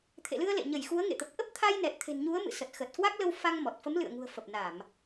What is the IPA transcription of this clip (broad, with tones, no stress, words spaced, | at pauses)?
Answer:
t̪ʰḛ˧˨lɨ˧ə̯ lḛ˧˨ɲə˧˩j xu˨˦ə̯ŋḛ˧˨t̪ə˨˩p̚ ʔə˦˥p̚t̪ʰa˧jnɛ˨˩t̚ t̪ʰe̤˨˩nɲu˨˦ə̯mɨ̰˧˨ sə˨˩t̚ xə˨˩t̚kwa˦˥k̚lə˧w fa˧ŋmɔ˨˩t̚ fə˨˦mlɨ̰˧˨ə̯ŋṳ˨˩ə̯fə˨˩p̚ na˧˩˨m